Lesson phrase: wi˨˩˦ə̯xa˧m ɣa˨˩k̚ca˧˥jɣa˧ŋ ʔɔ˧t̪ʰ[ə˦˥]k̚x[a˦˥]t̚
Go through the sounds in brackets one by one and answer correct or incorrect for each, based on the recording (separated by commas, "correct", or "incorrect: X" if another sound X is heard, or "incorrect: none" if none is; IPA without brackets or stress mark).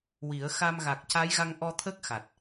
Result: correct, incorrect: a˨˩